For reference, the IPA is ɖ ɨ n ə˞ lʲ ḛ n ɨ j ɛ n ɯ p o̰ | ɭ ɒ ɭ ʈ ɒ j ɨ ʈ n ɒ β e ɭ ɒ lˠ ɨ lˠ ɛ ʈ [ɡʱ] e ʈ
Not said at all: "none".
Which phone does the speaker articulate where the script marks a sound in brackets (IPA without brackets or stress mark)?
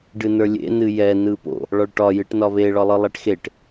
x